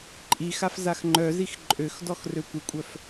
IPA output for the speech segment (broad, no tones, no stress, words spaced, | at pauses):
ǃʼixaf zaxŋ͡ǃœzix ǃʼøxdɔx røkʷəkʷʼœf